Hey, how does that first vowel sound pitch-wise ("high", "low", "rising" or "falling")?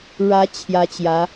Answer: rising